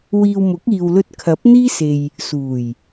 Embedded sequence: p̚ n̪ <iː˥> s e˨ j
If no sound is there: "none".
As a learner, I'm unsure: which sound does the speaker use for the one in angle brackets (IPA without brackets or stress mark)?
iː˥